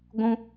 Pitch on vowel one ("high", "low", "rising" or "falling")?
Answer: high